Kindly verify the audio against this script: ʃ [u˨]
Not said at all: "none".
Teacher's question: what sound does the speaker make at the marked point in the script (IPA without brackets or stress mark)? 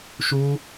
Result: u˦